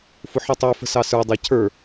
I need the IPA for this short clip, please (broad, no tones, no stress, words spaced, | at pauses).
fʊħitˤə˞ fə̤sɑsə˞ dˤɑcʰə˞